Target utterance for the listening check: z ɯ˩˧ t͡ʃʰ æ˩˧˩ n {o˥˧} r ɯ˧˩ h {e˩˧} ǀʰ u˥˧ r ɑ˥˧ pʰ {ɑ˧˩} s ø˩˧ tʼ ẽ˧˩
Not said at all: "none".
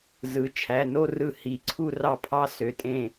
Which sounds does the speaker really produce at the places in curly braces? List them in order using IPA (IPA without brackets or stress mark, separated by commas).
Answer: o˥˧, i˩˧, ɑ˥˧